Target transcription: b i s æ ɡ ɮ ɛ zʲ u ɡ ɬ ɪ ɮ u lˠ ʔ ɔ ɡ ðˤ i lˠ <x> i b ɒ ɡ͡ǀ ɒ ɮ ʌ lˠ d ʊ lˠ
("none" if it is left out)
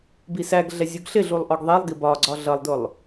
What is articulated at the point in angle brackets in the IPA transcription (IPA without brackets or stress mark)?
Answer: ɡ